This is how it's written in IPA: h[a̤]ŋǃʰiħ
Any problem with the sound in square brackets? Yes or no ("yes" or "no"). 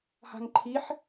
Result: no